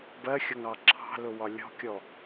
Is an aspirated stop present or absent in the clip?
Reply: present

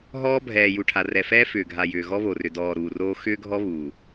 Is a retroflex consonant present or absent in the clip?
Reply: present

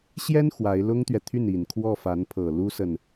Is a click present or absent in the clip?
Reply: absent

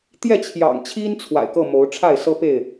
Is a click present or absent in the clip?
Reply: absent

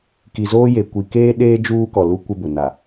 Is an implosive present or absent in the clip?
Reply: present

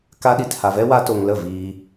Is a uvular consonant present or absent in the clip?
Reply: absent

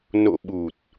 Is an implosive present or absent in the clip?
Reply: present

